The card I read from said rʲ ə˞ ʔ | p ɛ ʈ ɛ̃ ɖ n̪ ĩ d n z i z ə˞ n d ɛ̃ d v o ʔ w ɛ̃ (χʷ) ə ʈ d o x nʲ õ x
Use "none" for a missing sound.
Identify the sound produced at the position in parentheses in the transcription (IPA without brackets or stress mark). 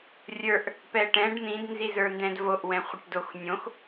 χʷ